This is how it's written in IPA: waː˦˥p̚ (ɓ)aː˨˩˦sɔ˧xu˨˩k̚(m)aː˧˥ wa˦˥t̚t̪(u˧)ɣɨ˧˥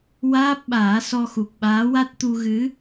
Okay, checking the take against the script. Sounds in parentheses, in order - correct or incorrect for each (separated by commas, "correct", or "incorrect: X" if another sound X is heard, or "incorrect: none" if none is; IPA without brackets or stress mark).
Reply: correct, incorrect: ɓ, correct